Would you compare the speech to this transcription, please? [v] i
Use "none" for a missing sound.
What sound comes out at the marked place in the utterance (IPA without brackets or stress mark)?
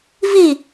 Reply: v